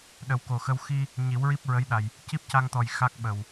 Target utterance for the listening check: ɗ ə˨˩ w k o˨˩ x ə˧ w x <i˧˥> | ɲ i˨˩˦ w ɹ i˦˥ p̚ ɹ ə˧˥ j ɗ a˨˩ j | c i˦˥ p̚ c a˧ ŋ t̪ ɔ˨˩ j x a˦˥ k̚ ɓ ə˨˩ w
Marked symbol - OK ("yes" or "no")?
no